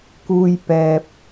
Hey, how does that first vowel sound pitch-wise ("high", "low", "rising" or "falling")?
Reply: high